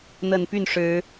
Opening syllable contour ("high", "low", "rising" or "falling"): low